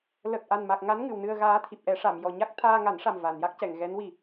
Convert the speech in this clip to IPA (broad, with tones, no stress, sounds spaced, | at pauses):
l ə˨˩ k̚ ʔ a˨˩ n m a˨˩ k̚ ŋ a˧˥ n ŋ ɨ˨˩˨ w n ɨ˧ ə̯ ɣ aː˧˥ t̪ʰ i˨˩ p̚ ʔ ɛ˨˩˦ ʂ a˨˩˨ m j ɔ˨˩˨ ɲ a˦˥ k̚ t̪ʰ aː˧ ŋ a˨˩˦ n ʂ a˨˩ m v a˨˩˨ n j a˦˥ k̚ c ɛ˨˩˨ ŋ ɣ ɛ˧˥ n w i˨˩